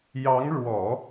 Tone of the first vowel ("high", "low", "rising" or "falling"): rising